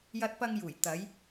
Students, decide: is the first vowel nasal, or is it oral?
oral